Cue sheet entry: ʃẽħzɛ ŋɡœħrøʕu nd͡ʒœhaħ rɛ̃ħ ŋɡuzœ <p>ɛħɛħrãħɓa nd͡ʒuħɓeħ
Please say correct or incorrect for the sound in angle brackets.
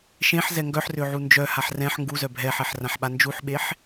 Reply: incorrect: bʱ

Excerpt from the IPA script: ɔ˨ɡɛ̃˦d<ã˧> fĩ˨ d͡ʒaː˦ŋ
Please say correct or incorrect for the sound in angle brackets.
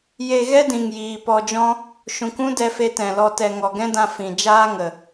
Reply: correct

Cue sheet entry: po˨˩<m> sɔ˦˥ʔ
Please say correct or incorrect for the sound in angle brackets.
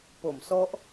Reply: correct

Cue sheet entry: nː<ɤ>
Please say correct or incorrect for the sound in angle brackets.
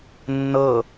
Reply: correct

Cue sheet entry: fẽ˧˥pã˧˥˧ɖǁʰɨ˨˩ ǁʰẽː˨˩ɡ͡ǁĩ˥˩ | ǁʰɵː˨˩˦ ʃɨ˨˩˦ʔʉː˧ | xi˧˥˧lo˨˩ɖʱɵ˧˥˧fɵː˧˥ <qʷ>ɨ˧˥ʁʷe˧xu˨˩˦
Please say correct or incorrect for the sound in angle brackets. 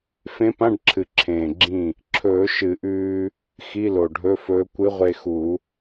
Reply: incorrect: kʷ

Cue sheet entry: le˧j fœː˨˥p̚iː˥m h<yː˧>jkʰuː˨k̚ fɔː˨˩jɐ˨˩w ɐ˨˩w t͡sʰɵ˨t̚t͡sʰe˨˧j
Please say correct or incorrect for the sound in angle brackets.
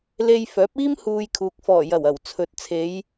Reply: incorrect: uː˧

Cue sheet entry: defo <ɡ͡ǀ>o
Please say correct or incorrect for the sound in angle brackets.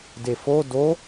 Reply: incorrect: d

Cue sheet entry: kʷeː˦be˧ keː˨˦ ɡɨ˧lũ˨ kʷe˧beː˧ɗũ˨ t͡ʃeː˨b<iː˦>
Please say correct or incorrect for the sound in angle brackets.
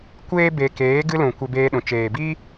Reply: correct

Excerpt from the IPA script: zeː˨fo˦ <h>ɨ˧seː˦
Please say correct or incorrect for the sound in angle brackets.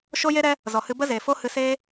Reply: correct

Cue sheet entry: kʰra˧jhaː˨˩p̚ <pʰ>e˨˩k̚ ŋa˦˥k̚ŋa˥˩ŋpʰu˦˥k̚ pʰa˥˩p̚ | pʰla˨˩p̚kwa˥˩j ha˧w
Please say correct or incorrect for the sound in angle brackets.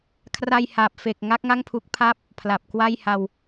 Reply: incorrect: f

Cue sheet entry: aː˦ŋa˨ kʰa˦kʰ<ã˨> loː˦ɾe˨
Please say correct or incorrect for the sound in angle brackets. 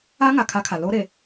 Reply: incorrect: a˨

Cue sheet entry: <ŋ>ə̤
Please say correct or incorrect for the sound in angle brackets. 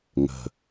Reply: correct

